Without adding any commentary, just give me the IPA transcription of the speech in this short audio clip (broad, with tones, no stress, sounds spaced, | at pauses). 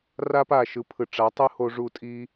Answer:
r a˦ p a˦˨ ʃ ɯ˨˦ pʰ ɯ˨ ʈ͡ʂ a˨˦ tˤ ɯ˦ h o˧ ʐ u˧ tʼ i˦